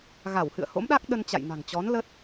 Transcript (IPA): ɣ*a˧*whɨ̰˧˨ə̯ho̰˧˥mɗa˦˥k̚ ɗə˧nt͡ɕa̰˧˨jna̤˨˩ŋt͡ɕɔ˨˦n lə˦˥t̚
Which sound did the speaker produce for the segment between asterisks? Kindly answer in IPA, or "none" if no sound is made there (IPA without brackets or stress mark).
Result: a˧˩